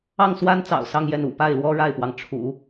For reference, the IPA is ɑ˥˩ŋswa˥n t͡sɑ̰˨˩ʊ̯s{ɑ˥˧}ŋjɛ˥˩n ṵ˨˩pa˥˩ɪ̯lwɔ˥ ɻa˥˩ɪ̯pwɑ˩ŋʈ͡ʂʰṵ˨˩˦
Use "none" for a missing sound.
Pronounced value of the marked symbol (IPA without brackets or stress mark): ɑ˥˧